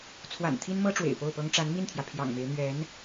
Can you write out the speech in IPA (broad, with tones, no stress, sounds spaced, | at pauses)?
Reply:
t͡sʰ w a̰˨˩ n t̪ʰ i˥ n m ɤ˥ ʈ͡ʂ w ḛ˨˩ ɪ̯ p o˥˩ ʊ̯ p ɤ˥ ŋ ʈ͡ʂ a˧˥ n m i˥˩ n t̪ʰ j ä˩ pʰ j ɑ̰˨˩ ŋ m e˧˥ ɪ̯ n̪ ɥ ɛ˧˥ n